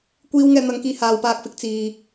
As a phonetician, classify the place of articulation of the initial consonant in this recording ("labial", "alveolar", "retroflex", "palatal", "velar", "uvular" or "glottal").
velar